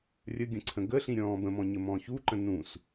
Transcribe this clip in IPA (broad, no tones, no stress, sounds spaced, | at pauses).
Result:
rʲ ə ɡʲ ə̃ ǀʰ ə̃ ɡ ə ɬ ĩ ɾʲ ɔ̃ː b ə̃ m ɔ̃ ɲ ə m ɔ̃ ç u ǃ ə̃ n ũ s